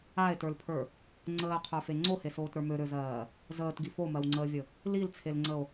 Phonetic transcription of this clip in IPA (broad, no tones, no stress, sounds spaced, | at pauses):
a e̯ t ə˞ l pʰ ə˞ | ŋ͡ǀ əː qʰ ə˞ f e ŋ͡ǀ o h e s oː t ɾ ə˞ m ø ɾ ø z ɜː | z əː t ɡ i f o m ɜ w ŋ͡ǀ əː vʲ ə | l i l t͡sʰ e l ŋ͡ǀ ə o̯